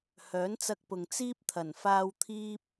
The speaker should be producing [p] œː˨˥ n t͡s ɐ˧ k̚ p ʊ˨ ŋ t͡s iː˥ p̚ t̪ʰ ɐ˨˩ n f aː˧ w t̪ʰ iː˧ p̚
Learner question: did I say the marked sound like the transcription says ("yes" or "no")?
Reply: no